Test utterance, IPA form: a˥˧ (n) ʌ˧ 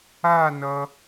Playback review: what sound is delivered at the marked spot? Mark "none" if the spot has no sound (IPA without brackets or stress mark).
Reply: n